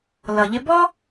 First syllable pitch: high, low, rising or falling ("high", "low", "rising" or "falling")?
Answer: low